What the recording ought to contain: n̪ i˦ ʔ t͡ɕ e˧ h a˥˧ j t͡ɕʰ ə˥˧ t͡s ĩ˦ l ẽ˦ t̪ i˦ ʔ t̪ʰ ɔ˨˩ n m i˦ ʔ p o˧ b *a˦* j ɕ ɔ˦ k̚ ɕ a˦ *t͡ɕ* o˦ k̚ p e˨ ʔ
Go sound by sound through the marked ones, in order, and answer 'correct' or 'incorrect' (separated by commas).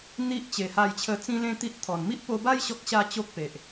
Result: correct, correct